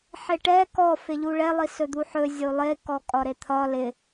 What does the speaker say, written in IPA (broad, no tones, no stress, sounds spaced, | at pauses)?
ħ ɪ ʈ ɛ k ɔ f ɪ ʎ u ɭ ɛ lˠ i s ɵ d̪ u ħ ɵ zʲ o lˠ e k ɔ kʼ ɒ ɾ e t̪ʰ ɒ l ɪ